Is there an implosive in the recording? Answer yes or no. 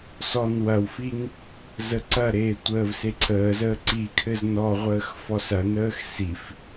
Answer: no